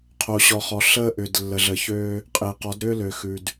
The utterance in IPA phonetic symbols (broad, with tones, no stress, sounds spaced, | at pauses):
qʰ o˨ ɕ ɔ˨ χ ɔ˨ ɬ əː˦ ʔ ʏ˨ d lː ə˨ ɮ əː˨ ç øː˦ | qʼ e˨ q ɔ˨˦ d ɾ ʏː˦ l ø˨ x ʉ˨ d